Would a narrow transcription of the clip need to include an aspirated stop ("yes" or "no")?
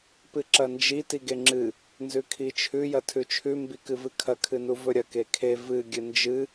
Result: yes